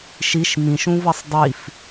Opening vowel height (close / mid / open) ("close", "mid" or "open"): close